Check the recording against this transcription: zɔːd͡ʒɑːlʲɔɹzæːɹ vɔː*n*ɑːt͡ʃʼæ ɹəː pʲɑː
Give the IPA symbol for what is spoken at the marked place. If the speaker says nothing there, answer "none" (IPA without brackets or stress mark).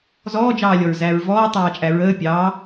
tˤ